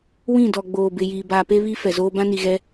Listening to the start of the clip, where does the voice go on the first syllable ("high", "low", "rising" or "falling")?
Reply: falling